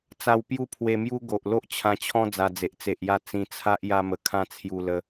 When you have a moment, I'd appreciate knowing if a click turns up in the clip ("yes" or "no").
no